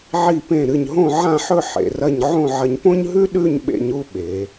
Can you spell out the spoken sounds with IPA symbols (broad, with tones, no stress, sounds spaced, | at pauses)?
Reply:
ʕ i˧˩ p ẽ˧˩ ɾ ɨ˧˩ ɲ ɦ õ˥˧ ʕ ã˥˧ ħ ɵ˥˧ ħ ḛ˩˧ r ɐ˥˧ ɲ ʕ õ˥˧ ʕ ɐ˧ ɲ p õ˥ ɲ ɦ ʉ˥ ɗ ʉ˥˧ ɲ ɓ ḛ˧ ɲ u˥˧ ɓ e˩˧